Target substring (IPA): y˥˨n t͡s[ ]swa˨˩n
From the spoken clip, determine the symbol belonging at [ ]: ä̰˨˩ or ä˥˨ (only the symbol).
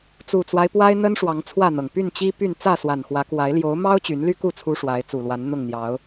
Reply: ä˥˨